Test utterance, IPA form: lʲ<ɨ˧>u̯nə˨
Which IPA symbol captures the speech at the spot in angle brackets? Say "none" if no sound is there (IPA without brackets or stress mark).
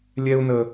ɛ˧